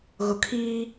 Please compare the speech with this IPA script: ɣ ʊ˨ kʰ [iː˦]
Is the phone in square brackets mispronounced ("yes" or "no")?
no